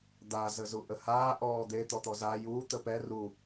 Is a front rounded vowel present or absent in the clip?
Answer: absent